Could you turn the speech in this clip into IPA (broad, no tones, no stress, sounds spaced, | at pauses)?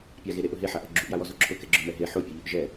pʲ a ɣ e ɾ e ʔ ʊ ɦ e ħ a ʔ ɔ ɡ͡ǁ u ʔ j a w ɔ z o ǁʰ ʊ k ɛ ɡ͡ǁ ʊ m ɛ ɦ e ħ o pʲ ɔ ʎ o ʔ ʒ ɛ